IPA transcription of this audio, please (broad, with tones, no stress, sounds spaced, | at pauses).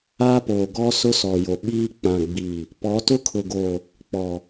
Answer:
a˦ p oː˨ ɡ ɔ˦ s ʊ˦ s ɔ˨ j o˨ ɓ iː˦ k͡p ã˨ ɡ͡b iː˨ | p ɔ˨˦ t ʊ˦ kʰ ʊ˨ ɡ oː˨ | k͡p ɔ˨